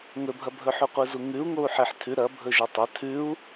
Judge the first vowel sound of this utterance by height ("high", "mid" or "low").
mid